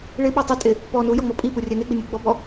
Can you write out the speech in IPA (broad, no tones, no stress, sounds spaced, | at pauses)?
ɭ ɪ ɓ a tˤ ɪ tʼ ɪ | p ɔ n u j ɔ ŋ͡m ɔ pʼ i p u rʲ ɛ n e ɡ͡b ɪ nʲ u ɡ͡b ɔ b ɔ